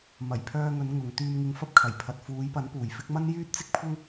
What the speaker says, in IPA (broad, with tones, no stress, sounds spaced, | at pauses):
m ɐ˨˩ j pʰ œː˧ ŋ ɵ˨˧ n ŋ ʊ˨˧ ŋ t̪ yː˧ m ŋ ɪ˧ ŋ f ɐ˥ p̚ kʰ ɐ˨˩ j pʰ ɐ˨ t̚ f uː˨˧ j p ɐ˨˥ n p uː˨˩ j f ɪ˥ k̚ m ɐ˥ n j yː˥ t̚ t͡s ɪ˥ k̚ pʰ ʊ˥ ŋ